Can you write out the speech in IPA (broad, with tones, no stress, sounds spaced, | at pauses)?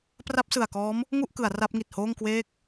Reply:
p r a˦˥ p̚ s ɯ˨˩ a̯ k ɔː˦˥ m | ŋ u˥˩ ʔ k ɯ˩˦ a̯ r a˦˥ p̚ ŋ i˨˩ t̚ h oː˥˩ ŋ k w eː˦˥ k̚